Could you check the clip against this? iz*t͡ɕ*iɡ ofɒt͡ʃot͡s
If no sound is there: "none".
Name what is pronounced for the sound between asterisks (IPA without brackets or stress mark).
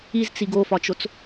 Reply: t͡s